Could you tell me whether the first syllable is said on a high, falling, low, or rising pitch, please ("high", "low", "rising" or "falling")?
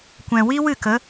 low